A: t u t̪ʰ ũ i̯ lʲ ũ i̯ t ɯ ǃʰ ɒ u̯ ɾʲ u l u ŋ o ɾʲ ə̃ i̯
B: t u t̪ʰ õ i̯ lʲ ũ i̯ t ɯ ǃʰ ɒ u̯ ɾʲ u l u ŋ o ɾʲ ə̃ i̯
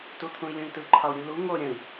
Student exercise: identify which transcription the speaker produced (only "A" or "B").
A